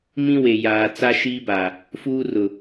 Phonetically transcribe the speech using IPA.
m ĩ˦ w e˨ j aː˨ t͡s a˦ ʃ iː˦ b a˨ | f uː˦ r ʊ˨

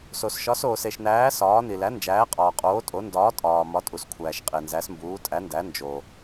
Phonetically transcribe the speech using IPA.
s o˩ s ʃ ɒ˩˥ s oː˩ s e˩ ʃ n æː˩˥ s ɒː˩˥ n i˩ l æ˩˥ n d͡ʒ æː˩˥ qʼ ɒː˩ qʼ oː˩˥ tʼ o˩˥ n d ɒː˩˥ tʼ ɒː˩ m ɒ˩˥ tʼ u˩ s kʷʰ æː˩ ʃ qʼ e˩ n z æ˩˥ s m b uː˩˥ tʼ æ˩˥ n d æ˩˥ n d͡ʒ o˩

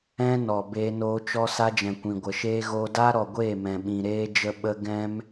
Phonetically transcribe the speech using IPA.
ɛ̃˦ n ɔ˨ b eː˧ n oː˧ t͡ʃ ɔ˦ s a˧ d͡ʒ ɛ̃˨ kʷ ĩ˨ ɡʷ ə˨ ʃ eː˦ ɣ oː˧ d aː˦ ɾ ɔ˨ ɡʷ eː˦˨ m ɛ̃˨ ɓ ĩ˨ ɾ eː˧ d͡ʒ ə˧ ɓ ə˧ ɡ ɛ̃˦ m

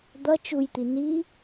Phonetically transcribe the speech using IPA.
d̪ ʌ t͡ʃ u j t̪ i n i

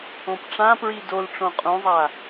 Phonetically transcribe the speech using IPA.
õ p ʈ͡ʂ ã p ɹ i d o l ʈ͡ʂ õ qʼ ũ zˤ a

